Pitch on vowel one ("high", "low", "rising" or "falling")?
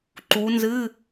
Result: rising